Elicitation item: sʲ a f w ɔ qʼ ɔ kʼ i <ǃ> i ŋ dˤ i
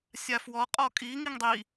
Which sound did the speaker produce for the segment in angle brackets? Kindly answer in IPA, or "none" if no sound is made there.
ŋ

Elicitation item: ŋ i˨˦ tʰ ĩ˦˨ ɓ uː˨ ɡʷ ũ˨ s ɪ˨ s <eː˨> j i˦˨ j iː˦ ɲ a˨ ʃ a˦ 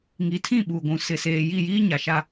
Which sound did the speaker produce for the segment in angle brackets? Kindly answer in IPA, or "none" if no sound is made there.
eː˨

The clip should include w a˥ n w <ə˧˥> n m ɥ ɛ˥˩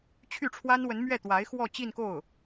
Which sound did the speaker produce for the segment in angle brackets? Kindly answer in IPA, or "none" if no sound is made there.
ə˧˥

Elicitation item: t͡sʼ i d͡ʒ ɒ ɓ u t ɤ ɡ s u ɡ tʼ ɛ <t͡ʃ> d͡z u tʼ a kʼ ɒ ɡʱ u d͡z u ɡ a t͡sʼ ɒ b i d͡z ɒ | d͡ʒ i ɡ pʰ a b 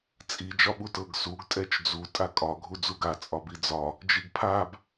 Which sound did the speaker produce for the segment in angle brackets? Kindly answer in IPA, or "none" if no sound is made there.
t͡ʃ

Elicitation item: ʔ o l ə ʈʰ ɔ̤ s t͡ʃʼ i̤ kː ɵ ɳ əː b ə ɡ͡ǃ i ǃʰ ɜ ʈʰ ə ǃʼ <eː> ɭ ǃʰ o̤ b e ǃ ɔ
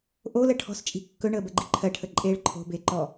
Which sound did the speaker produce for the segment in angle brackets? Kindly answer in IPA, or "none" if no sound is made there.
eː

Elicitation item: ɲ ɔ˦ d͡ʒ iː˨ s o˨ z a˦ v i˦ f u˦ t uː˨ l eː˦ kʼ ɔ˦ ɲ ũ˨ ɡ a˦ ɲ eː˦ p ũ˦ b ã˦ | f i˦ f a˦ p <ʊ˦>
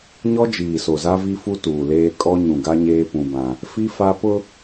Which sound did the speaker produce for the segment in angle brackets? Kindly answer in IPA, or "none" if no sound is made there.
ʊ˦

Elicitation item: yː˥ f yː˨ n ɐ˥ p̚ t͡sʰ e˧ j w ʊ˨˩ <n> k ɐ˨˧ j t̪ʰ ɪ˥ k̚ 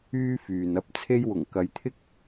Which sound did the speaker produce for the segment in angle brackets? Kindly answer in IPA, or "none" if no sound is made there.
ŋ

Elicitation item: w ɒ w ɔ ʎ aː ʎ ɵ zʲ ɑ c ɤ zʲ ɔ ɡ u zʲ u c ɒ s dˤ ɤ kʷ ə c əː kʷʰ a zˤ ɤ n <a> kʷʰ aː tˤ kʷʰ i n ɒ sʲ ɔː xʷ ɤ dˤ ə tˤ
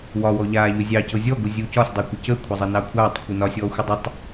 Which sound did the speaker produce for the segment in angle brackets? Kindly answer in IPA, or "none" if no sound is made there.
ɑ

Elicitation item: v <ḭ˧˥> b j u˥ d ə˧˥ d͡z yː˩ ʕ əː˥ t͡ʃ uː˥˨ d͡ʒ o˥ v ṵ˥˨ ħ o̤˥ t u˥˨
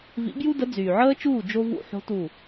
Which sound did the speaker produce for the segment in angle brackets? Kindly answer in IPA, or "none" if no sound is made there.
ḭ˧˥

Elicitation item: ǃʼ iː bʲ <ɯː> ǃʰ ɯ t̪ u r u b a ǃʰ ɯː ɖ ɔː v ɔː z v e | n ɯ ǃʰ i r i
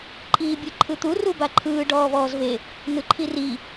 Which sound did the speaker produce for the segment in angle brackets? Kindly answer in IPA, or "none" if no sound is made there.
ɯ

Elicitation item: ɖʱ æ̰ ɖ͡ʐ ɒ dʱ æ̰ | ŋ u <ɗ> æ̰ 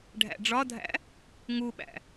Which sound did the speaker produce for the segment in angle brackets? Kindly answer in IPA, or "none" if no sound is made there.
ɓ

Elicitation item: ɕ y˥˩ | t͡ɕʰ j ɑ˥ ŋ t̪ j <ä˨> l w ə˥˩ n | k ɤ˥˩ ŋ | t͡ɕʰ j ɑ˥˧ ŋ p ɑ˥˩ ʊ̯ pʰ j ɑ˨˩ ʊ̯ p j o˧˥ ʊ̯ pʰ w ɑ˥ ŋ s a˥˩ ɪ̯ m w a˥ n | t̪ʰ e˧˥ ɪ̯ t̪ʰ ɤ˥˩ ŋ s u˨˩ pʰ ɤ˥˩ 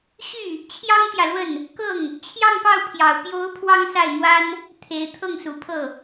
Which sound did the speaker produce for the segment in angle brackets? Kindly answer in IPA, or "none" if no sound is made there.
ä˨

